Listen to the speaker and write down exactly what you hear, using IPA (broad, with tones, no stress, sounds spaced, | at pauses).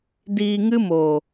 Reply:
d iː˧ ŋ ɨ˦ m oː˨